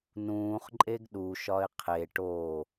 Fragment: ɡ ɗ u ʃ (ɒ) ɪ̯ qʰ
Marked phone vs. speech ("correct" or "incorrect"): correct